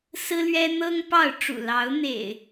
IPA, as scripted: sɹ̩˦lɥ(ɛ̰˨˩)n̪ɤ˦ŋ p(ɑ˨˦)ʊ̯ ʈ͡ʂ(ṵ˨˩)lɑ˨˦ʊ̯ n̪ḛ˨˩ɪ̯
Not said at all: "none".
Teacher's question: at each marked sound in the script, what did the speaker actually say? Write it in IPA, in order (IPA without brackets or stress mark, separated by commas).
ɛ˦, ɑ˥˨, ṵ˨˩